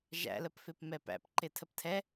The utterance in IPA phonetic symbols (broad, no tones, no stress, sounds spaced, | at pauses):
ʒ æ̰ l ə p f ɪ p m ɛ p æ̰ p ǃ ɪ tʰ ə p tʰ ɛ